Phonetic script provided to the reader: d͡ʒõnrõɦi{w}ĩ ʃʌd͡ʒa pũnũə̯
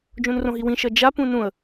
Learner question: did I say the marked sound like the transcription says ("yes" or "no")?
yes